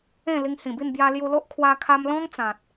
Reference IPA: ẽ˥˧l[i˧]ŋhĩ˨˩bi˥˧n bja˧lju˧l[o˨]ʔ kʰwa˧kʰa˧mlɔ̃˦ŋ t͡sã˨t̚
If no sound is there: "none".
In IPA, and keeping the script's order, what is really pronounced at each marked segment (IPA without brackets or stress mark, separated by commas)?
i˧, o˦